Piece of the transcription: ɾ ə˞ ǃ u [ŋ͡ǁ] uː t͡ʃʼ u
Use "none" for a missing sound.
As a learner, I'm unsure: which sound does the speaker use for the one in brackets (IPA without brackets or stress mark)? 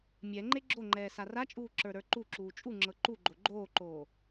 ǁ